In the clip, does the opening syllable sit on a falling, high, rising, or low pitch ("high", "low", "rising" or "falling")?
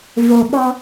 low